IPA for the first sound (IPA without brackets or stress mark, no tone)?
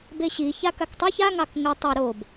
b